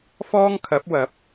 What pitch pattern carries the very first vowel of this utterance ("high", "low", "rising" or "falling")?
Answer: high